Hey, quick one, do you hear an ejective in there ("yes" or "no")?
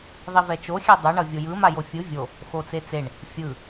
no